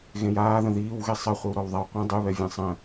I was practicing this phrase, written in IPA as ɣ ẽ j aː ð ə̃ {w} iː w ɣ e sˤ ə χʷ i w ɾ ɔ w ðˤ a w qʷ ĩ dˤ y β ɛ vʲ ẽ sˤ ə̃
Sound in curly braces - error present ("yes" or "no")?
yes